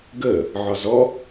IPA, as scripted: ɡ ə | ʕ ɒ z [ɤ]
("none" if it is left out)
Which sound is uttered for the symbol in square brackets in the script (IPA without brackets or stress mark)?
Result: ɔ